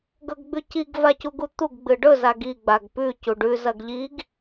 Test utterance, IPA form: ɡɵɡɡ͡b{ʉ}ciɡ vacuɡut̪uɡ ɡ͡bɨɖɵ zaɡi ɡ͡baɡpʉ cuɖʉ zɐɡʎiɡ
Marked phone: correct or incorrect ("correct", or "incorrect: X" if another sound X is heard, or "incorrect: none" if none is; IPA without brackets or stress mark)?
correct